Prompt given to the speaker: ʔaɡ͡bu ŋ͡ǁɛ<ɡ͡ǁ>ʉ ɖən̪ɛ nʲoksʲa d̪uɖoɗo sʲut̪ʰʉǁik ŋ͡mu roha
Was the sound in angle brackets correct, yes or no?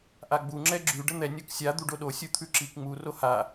yes